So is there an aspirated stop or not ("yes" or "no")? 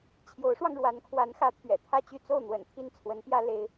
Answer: yes